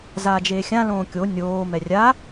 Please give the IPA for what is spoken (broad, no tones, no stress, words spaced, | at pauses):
zaːd͡ʒeːxʲã lõːkʲo nʲoː mɛrʲa